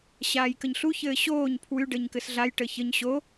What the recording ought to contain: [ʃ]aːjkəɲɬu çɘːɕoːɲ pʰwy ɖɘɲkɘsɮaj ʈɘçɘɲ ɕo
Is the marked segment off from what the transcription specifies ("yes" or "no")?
yes